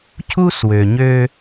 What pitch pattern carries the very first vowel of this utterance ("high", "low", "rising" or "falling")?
high